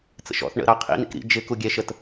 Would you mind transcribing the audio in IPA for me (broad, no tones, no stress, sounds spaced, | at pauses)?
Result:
t͡s ə̰ ʃ ɔ̰ θ ɳ ə̰ ɾ ɑ qʰ ḭ n̪ ḭ k ɾ ḭ d͡ʒ ɪ k u ɡʲ ɛ ʃ ə t